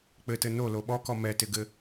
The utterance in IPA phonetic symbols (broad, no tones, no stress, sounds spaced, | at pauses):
k͡p ɘ t ɘ n o l o ɓ ɔ k ɔ m ɛ t ɪ ɡ ɘ